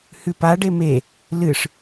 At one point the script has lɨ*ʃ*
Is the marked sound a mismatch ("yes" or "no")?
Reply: yes